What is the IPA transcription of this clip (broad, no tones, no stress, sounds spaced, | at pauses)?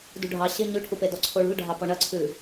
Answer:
d ṳ ɖʱ ɑ ɕ ɪ ɲ ʉ ʈʰ u p e d ɔ ǀʰ o ɭ ṳ l ɖʱ ɑ p ɔ ɳ ɐ ǀʰ ʉ